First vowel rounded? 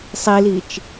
no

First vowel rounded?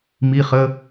no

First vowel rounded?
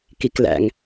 no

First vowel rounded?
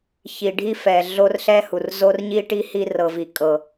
no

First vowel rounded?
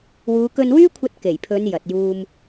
yes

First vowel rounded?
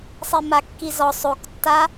no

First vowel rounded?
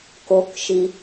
yes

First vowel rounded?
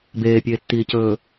no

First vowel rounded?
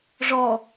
yes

